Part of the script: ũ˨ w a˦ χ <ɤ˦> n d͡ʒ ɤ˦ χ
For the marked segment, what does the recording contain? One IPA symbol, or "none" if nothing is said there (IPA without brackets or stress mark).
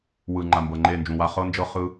ɤ˦